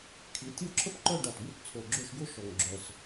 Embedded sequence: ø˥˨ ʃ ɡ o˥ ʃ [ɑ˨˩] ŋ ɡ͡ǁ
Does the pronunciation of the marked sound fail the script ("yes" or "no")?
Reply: yes